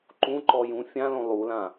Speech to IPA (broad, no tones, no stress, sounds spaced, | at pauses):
ǃ ũ ǃ ɔ j ũ fʲ ã l õ lˠ u l ã